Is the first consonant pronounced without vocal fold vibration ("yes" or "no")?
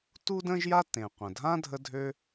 yes